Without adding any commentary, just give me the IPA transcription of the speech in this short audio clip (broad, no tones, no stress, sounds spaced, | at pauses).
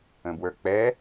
ə̃ b w ə˞ k͡p ɛ